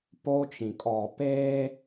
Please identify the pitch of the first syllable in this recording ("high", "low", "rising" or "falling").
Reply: high